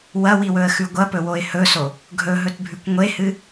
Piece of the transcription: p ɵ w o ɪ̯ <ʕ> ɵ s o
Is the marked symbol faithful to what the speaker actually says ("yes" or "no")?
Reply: no